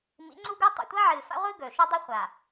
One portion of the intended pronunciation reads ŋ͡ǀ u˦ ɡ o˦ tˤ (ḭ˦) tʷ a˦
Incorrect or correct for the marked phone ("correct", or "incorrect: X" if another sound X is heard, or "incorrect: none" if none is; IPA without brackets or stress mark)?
incorrect: ḭ˨